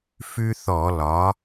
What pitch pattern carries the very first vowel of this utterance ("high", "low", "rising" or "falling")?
high